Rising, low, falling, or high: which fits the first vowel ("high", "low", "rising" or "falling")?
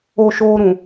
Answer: low